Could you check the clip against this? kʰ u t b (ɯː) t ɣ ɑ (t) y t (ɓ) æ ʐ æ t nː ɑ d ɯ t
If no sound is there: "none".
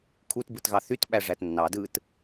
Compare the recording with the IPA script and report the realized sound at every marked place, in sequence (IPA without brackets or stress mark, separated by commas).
ɯ, θ, ɓ